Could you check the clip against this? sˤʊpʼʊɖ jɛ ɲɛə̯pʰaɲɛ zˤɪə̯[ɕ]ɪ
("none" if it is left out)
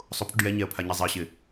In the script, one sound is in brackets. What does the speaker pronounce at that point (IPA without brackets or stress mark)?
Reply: ɕ